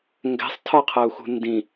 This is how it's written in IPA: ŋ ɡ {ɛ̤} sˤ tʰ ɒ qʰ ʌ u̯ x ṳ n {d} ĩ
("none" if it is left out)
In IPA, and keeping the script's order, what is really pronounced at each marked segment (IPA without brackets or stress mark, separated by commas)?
ɛ̤, d